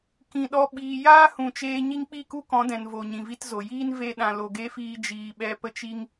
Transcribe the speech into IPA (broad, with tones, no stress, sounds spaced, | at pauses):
k ĩ˨ ɗ ɔ˧ ɓ iː˨ j aː˦ h ũ˨ t͡ʃ eː˧ ɲ i˦ ŋ k͡p i˦˨ k u˦ k ɔ̃˨˦ d ɛ̃˨ n v o˨ ɲ ĩ˨ v i˦ t z o˨ j iː˦ n v e˦ ɗ ã˨ l o˨ ɡ e˦ f iː˧ d͡ʒ iː˧ ɓ ɛ˦ p ə˦ t͡ʃ i˦ ŋ